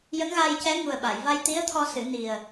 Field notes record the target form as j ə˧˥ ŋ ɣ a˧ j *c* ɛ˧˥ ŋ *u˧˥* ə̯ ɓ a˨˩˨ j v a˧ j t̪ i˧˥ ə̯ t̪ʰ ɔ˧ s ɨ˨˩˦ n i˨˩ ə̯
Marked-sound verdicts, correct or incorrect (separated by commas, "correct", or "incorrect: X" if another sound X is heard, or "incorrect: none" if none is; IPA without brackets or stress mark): correct, incorrect: u˨˩